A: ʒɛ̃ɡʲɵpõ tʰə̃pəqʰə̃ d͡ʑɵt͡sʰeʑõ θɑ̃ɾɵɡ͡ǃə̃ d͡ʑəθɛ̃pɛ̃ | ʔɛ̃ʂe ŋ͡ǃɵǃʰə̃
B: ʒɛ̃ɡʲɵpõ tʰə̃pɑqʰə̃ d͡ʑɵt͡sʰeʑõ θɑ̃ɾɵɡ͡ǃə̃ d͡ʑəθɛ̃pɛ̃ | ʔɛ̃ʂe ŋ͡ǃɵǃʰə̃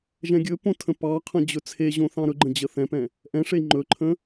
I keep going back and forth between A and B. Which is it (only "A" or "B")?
B